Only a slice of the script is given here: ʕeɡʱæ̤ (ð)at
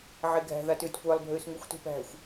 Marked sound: correct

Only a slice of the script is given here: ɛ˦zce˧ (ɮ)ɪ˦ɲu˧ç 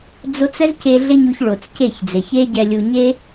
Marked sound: correct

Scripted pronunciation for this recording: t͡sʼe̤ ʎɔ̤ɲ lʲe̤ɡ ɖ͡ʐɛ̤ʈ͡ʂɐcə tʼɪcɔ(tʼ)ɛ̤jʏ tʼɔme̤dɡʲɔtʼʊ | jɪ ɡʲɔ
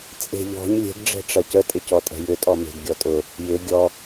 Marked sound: correct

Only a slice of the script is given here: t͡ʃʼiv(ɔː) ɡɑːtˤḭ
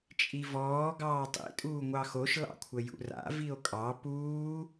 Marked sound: correct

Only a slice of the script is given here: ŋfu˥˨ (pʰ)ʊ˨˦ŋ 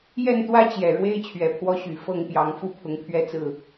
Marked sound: correct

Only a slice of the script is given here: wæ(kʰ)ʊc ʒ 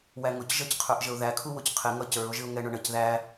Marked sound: incorrect: ŋ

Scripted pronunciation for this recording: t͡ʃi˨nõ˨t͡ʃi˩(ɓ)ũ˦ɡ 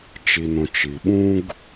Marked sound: correct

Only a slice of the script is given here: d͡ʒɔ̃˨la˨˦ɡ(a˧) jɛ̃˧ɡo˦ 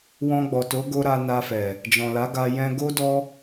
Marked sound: correct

